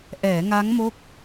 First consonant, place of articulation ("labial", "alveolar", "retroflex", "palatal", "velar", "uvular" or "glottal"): glottal